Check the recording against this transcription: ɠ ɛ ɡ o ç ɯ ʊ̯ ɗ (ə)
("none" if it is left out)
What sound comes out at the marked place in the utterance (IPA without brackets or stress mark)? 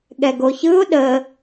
ə